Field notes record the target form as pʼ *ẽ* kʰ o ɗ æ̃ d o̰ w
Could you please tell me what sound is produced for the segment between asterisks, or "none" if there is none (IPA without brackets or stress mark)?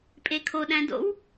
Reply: e